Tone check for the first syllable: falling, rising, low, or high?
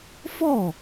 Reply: falling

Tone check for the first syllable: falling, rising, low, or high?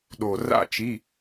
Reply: low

